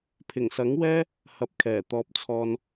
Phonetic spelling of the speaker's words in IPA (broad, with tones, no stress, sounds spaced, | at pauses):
pʰ ɪ˨˩ ŋ s ɐ˨˥ ŋ w ɛː˥ | h ɐ˧ p̚ kʰ ɛː˨˩ t̪ ɔː˧ p̚ t͡sʰ ɔː˧ n